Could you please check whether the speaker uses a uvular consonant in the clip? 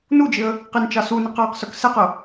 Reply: yes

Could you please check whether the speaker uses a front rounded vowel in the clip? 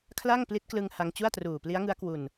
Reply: no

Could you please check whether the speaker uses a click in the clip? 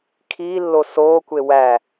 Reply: no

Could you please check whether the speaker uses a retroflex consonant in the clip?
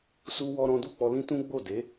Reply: no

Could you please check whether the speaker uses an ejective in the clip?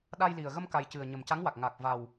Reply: no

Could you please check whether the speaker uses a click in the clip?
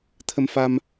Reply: no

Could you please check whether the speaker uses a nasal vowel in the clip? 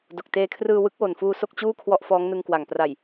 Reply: no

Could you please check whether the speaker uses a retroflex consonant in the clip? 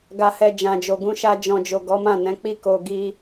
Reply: no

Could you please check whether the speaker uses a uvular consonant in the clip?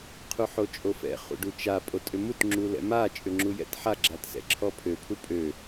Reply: yes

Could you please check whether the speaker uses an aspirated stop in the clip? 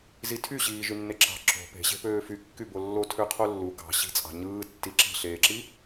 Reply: yes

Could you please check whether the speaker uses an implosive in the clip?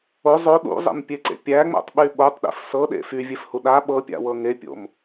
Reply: yes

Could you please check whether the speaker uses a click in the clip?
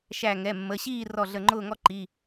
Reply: yes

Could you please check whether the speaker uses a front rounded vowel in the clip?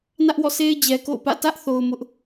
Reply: no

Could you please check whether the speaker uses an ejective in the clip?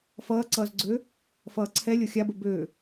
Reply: no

